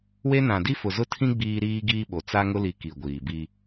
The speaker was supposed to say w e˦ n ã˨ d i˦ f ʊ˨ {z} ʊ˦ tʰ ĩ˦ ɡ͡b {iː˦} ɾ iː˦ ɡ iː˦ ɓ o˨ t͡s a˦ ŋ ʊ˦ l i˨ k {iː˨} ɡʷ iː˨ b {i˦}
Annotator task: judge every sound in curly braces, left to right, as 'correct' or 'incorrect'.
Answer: correct, correct, incorrect: i˨, correct

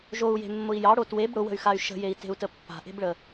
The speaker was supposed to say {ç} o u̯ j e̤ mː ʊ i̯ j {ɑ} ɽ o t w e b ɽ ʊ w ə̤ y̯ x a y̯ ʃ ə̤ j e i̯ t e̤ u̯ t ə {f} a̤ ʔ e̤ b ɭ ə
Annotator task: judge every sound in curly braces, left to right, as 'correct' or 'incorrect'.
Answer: incorrect: ʒ, correct, incorrect: pː

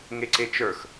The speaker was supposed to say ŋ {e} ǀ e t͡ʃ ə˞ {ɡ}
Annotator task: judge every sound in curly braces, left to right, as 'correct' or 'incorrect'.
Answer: correct, incorrect: x

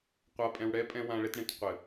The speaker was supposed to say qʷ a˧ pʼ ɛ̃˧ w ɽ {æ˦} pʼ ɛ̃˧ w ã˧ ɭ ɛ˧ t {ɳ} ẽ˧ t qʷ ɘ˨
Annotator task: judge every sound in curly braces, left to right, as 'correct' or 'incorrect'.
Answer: incorrect: ɛ˦, correct

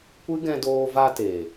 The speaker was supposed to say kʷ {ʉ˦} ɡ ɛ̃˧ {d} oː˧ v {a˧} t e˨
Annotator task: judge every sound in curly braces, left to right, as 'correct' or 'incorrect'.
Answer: incorrect: ɨ˦, correct, correct

